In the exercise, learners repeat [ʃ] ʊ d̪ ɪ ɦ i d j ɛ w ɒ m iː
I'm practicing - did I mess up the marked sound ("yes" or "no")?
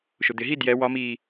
no